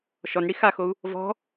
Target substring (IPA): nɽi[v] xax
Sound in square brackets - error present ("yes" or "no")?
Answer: yes